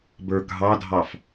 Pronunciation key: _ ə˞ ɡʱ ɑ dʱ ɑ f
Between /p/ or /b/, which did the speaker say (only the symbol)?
b